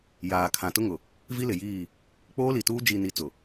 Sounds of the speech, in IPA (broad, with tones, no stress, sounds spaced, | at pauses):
j aː˨ kʰ ã˨ t ʊ˦ ŋ ʊ˨ | v i˦ l ɪ˨ j iː˦˨ | k͡p oː˦ l i˨ t uː˦ d͡ʒ i˨ n i˨ t͡s ʊ˨